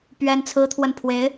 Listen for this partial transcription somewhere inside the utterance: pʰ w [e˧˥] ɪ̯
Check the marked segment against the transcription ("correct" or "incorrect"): correct